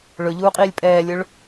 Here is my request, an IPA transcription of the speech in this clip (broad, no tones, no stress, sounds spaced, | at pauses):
ɭ ɵ ʎ uː qʼ iː lʲ pʼ ɛː lʲ ɵ ɭ